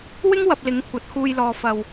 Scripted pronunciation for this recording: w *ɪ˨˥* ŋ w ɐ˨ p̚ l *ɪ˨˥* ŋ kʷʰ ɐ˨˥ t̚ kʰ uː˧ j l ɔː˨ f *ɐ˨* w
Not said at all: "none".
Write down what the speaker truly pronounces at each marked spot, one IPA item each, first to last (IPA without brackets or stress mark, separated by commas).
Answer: ɪ˥, ɪ˨˥, ɐ˨